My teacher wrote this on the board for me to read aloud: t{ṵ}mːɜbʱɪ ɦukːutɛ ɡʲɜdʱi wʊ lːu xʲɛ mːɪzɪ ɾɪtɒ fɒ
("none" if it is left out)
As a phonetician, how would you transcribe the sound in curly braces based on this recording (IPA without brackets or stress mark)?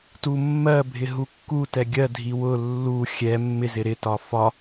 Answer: u